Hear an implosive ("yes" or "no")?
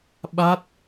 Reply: yes